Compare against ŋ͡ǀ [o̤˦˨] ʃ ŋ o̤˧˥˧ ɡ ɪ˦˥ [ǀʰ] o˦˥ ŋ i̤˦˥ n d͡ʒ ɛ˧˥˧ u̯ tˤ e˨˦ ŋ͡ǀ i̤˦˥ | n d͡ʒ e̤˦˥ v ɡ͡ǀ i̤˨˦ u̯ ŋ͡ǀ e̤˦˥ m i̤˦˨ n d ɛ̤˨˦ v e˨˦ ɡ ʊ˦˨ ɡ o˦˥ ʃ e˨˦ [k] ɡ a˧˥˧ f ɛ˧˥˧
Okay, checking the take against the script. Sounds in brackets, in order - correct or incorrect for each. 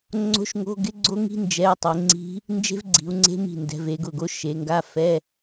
incorrect: o̤˦˥, incorrect: ɡ͡ǀ, incorrect: ŋ

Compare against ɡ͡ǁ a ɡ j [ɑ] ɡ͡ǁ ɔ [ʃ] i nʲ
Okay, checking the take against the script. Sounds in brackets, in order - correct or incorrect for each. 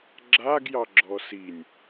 correct, incorrect: s

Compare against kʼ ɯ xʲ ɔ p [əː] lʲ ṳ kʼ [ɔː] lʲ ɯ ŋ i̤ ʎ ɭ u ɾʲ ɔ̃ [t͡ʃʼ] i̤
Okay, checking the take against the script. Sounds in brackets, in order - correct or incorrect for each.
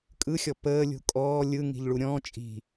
correct, correct, correct

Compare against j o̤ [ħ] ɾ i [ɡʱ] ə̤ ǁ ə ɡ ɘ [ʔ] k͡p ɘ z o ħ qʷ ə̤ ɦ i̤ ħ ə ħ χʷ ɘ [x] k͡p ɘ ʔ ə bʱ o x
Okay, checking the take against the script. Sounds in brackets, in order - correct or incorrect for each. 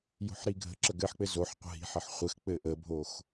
correct, correct, incorrect: ħ, correct

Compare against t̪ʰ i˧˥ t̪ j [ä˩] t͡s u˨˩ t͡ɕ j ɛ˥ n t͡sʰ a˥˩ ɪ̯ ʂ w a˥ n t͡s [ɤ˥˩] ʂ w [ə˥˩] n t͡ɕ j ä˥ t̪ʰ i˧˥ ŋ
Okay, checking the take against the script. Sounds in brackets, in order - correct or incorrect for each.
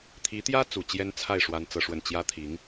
incorrect: ä˥, incorrect: ɤ˥, correct

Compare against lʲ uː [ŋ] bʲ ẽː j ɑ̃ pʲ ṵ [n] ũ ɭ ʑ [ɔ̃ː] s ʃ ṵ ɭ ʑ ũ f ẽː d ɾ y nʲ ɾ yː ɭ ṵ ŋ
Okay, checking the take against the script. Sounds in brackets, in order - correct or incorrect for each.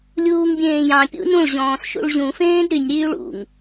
correct, correct, correct

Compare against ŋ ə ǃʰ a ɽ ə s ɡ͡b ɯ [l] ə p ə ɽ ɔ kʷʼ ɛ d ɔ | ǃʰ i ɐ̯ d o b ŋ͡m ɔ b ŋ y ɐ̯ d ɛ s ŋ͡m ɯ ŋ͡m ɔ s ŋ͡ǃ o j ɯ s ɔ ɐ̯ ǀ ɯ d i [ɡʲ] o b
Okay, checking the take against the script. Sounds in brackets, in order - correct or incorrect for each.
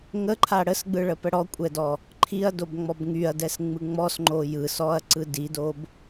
incorrect: ɭ, incorrect: d

